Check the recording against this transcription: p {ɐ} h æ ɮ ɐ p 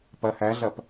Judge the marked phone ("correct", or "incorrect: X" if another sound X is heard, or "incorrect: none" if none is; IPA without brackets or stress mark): correct